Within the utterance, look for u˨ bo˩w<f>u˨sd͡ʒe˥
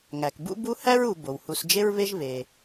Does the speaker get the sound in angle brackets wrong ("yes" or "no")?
yes